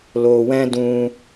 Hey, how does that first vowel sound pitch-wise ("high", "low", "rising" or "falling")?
low